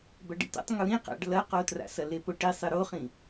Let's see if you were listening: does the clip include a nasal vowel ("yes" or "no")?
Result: yes